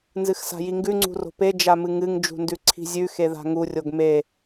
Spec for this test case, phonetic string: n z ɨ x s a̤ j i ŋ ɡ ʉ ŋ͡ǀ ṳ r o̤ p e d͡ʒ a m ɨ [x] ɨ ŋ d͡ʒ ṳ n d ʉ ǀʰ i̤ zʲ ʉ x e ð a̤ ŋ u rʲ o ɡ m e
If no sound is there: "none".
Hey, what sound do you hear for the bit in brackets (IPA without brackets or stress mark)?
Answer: ŋ